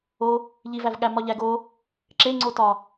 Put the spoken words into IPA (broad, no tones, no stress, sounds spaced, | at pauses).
o | ʎ i v æ v ɠ æ m ɒ ʎ æ ɡ o | ǁ e ŋ͡ǀ o t ɒ